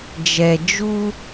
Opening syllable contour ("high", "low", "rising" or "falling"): low